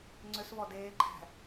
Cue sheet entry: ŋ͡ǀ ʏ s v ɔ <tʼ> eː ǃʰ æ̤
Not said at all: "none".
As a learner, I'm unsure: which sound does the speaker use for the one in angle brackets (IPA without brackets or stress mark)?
d